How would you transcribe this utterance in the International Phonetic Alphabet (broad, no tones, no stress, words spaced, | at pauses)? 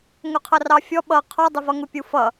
ŋʊqʰʌrɑfʲɔ ɓʌ qʰɔdˤɪvʌ ŋʊpʲufʌ